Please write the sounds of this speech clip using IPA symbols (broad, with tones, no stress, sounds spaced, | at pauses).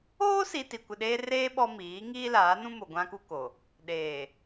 oː˦ s i˨ t i˨ kʷ ɪ˨ ɗ eː˦ r eː˦ ɓ ɔ˦ m iː˨˦ ŋ iː˦ l aː˨˦ n ũ˦ m o˨ ɡʷ ã˦ k u˦ k o˨ | ɗ eː˨